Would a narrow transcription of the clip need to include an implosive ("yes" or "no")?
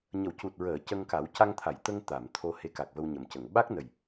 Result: yes